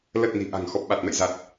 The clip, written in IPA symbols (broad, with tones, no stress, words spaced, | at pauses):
lə˨˩t̚ ni̤˨˩ʔa̤˨˩ŋ xɔ˨˩p̚ɓa˨˩t̚nə̰˧˨jza˨˩t̚